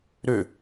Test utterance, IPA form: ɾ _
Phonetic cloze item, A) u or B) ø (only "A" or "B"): B